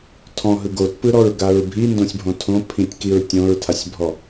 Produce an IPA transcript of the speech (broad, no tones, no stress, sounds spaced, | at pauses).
tʰ ɔ̃ ɦ ɯ ɡ o t p ɯ ɾ ɔ ɹ ɡ a ɹ bʱ i n d õ sʲ bʱ õ tʰ õ pʰ ĩ tʲ k i ɹ tʲ õ ɹ tʰ a sʲ bʱ ɔ